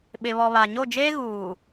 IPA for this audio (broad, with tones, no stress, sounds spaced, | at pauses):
ɓ ɪ˨ β ɔ˨ β a˨ ɲ o˦˨ d͡ʒ eː˦ ɣ uː˨